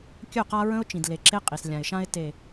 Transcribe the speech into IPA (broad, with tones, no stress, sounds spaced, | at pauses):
kʲ ɵ˦˨ q a˦ ɹ ə̃˦ ʊ̯ t͡ʃ ĩ˨ d l e˨ ǁ e˦ qʼ i˨ s lʲ ã˨ ɪ̯ ʃ ã˦ ɪ̯ t e˨